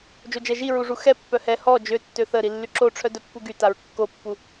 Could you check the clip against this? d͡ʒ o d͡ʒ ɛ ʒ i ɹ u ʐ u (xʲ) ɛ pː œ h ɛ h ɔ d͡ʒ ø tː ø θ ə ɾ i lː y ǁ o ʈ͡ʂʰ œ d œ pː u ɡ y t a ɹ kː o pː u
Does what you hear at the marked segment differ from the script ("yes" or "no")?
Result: yes